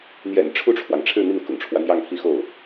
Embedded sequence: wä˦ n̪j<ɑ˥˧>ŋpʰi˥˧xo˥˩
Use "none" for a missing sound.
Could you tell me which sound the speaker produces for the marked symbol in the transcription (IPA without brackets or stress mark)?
ɑ˥˧